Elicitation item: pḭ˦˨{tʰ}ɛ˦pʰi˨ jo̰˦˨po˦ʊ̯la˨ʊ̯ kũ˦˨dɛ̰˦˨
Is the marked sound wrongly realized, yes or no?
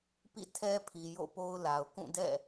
no